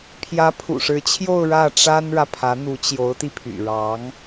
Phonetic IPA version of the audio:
pʰ j ä˧˥ pʰ ṵ˨˩ ʂ ɻ̩˧˥ t͡ɕʰ j o˥˧ ʊ̯ ɻ ä˥˩ ʈ͡ʂ a˥ n ɻ ä˨ pʰ ä˧˥ n̪ u˧˥ t͡ɕ j o˧˥ ʊ̯ t̪ i˧ pʰ y̰˨˩ ɻ ɑ˧˥ ŋ

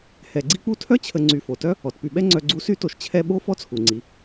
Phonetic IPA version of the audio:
h ɛ˨ ɡ͡ǀ i˥ k͡p u˥ tʰ œ˥ t͡ɕʰ ə˨ ŋ͡ǀ y˨ f o˩ t œ˥ | ɔ˩ t p y˨ ɓ ɛ˥ ŋ͡ǀ œ˦ ɡ͡ǀ u˥ s y˥ t o˨ ʃ t͡ɕʰ ɛ˦ ɓ o˥ f ɔ˦ t͡sʰ u˩ ŋ͡ǀ i˩

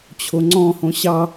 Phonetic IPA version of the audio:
t͡ɕʰ o ŋ͡ǀ ɔ̃ h õ ɕ ɑ

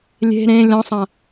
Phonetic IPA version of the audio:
lʲ e̤ ɾ ẽ lʲ ɔ̃ sˤ ã

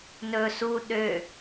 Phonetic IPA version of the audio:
n ɵ s u ɗ ø

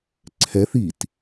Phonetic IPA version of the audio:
ǀʰ ɛ θ i t

